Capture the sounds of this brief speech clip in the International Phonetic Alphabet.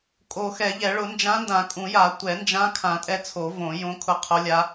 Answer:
kʼo˨˩˦xɛ˨˩˦ʎɛ˨˩˦ ɭʊ˨˩˦nd͡ʒã˧˥ndã˨˩˦ kʼũ˨˩˦ja˨˩˦ tʷɛ˨˩˦nd͡ʒã˧˥ kʰã˨˩˦ tʼɛ˧˥t͡sʰo˨˩˦ võ˨˩˦jõ˧˥ kʰʊ˧˥qʰo˧˥lʲa˧˥

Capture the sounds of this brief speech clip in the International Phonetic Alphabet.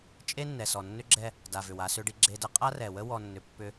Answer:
t͡ʃʼe˦nːɛ˨sɔ˨ nːʏ˦ɡ͡ǁɛ˦ | da˨vʏ˨w a˨sʏ˨ɖi˨ ɡ͡ǁe˨də˨ qʼa˦rɛ˨wə˦ wɔ˨nːʏ˨ pːʏ˦

